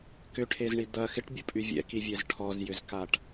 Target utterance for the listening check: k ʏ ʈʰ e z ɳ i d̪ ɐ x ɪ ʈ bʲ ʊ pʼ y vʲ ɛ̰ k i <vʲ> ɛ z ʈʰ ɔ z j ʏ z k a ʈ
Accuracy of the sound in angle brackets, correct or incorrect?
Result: correct